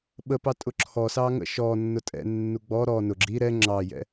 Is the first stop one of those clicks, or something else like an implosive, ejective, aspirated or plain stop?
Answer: implosive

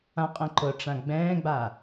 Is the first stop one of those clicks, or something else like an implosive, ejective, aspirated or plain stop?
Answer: ejective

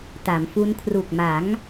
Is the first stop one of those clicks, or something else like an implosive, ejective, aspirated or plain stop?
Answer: plain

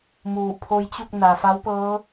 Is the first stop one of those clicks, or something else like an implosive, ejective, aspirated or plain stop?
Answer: aspirated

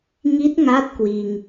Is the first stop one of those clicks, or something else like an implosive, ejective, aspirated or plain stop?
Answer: plain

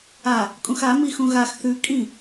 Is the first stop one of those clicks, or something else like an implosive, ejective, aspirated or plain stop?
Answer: ejective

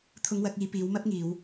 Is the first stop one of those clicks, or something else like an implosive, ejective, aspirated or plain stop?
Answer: aspirated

